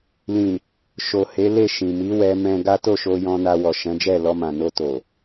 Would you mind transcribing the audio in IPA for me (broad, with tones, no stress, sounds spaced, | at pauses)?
l ĩ˨ | ʃ o˨ h e˨˦ l e˦˨ ʃ ĩ˨ m i˨˦ w ɛ˧ m ɛ̃˧ ɡ a˦ t o˦˨ ʃ o˧ j ɔ̃˧ n a˧ w ɔ˨ ʃ ɛ̃˨˦ d͡ʒ ɛ˦˨ l ɔ˧ m ã˨ n o˧ t o˨